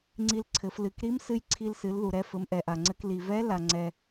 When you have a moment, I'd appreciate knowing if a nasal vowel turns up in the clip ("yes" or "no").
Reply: no